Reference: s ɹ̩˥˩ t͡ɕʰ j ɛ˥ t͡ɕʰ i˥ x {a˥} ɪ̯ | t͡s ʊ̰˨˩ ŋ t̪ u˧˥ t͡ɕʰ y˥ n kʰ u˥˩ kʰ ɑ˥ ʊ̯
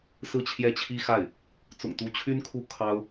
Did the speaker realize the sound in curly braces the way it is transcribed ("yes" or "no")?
no